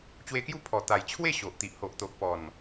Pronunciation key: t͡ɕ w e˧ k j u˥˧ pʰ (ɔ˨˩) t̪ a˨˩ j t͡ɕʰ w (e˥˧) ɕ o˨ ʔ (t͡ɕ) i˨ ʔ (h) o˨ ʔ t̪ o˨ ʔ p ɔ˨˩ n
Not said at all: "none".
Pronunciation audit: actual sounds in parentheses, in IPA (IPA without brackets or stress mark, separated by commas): ɔ˨˩, e˥˧, t̪, h